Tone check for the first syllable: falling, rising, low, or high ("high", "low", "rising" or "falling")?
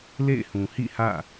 falling